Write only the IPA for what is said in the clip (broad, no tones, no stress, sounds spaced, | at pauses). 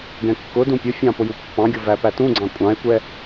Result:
ɡ ɛ̃ kː ʊ d ũ pʲ ʊ fʲ ɑ̃ p ʊ j u pː ɑ̃ ɡʲ ʊ v æ p æ t ũ ɡ͡ǀ ɑ̃ kʷʼ ɑ̃ e̯ kʷ ɛ